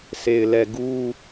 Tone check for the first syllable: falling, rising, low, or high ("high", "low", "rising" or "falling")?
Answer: low